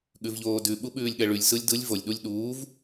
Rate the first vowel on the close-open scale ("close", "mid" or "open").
close